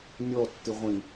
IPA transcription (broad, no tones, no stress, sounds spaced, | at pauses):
nʲ ɔ tː ɨ ʁʷ ĩ